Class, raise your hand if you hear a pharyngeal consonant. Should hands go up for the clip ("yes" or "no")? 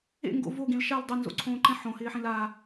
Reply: yes